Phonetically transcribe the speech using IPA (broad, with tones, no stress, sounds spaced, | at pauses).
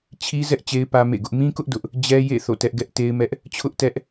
t͡ɕʰ i˦ z ɛ˦ ʔ t͡ɕ e˦ ɪ̯ p ä˦ m ḛ˦˨ ɡ ʊ˦ ʔ m ĩ˦ k ʊ˦ ʔ d ʊ˦ ʔ | d͡ʑ ɛ˦ j ḛ˦˨ θ o̰˦˨ t ɛ˦ ʔ ɡ ɛ˦ ʔ t e˦ ɪ̯ m ɛ˦ ʔ | t͡ɕʰ ʊ˦ ʔ t ɛ˦ ʔ